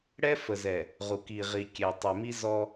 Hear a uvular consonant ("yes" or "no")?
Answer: yes